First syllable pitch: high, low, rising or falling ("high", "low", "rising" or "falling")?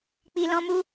low